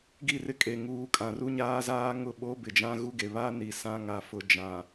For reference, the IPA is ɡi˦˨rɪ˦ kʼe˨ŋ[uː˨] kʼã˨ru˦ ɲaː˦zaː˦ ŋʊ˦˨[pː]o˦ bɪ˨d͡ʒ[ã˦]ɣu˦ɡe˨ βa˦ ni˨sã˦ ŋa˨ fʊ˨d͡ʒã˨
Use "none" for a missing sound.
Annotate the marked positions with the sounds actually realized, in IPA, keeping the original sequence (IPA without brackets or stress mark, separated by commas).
uː˨, ɓ, ã˦